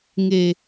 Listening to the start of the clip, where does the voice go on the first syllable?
low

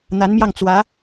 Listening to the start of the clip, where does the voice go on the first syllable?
rising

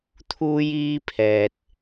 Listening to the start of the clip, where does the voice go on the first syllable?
high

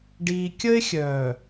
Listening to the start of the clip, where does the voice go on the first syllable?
low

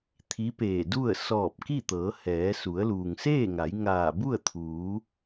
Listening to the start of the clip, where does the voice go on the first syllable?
rising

